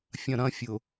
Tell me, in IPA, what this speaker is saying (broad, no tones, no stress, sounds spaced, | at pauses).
fʲ ɐ̃ ɾ ɐ̃ fʲ ʊ